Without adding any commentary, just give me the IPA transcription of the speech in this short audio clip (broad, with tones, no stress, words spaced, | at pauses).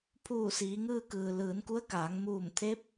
pʰuː˧˩siː˩˧ŋɯː˧kɯː˩ lɯː˩˧nku˧˥ə̯kaː˩˧ŋ muː˧˩m t̪ʰe˧˥p̚